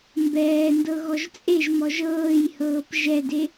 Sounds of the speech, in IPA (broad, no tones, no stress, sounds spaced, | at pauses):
m b ɛː n d ɤ ɣ ɔ ʒ t͡sʼ e ʒ m ɔ ʒ ɤː j h ɤː p ʒ ɛ d e